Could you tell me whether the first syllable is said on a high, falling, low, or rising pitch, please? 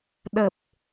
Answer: low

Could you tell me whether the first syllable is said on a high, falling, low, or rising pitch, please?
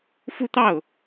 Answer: falling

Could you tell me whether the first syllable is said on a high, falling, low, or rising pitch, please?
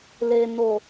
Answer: low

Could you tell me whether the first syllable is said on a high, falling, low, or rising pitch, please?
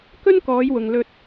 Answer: high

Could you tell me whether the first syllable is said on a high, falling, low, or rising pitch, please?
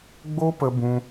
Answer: high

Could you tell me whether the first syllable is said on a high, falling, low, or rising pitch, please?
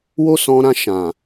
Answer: high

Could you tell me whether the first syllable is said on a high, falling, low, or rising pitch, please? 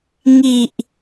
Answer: low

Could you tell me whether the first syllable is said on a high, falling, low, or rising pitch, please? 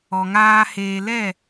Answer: low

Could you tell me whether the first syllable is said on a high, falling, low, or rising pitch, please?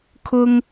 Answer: high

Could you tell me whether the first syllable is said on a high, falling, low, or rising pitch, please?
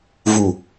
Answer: low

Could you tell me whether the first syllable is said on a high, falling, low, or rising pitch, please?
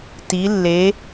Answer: rising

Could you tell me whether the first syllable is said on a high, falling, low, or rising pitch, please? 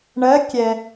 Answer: rising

